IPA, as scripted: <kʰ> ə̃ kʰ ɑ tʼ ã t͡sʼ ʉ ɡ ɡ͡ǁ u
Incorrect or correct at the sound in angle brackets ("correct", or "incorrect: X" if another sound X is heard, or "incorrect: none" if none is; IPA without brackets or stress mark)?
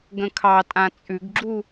incorrect: ɡ